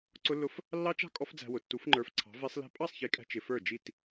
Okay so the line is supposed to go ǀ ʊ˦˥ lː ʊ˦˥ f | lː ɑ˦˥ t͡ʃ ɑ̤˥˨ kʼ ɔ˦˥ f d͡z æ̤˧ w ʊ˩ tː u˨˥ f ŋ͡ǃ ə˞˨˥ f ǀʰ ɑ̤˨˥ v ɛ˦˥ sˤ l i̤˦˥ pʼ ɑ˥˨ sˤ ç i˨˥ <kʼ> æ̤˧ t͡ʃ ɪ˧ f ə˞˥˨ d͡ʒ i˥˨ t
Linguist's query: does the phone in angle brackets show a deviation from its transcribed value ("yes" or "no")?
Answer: no